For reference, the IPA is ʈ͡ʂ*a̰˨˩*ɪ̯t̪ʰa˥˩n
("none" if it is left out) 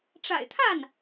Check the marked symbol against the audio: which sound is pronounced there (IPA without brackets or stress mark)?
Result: a̰˨˩